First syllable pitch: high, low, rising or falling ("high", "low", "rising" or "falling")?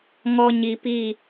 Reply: low